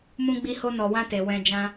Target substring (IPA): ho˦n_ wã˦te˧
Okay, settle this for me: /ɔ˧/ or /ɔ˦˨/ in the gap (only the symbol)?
ɔ˧